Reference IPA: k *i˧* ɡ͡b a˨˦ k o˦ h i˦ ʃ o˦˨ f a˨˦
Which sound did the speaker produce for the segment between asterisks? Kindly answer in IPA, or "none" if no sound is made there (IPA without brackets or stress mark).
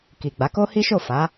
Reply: i˨